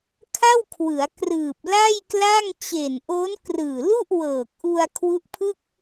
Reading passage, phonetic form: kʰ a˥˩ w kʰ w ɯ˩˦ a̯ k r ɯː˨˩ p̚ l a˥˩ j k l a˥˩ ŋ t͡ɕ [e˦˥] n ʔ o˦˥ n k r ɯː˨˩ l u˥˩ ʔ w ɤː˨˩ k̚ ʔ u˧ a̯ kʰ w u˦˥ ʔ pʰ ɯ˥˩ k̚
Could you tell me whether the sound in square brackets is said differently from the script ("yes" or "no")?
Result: yes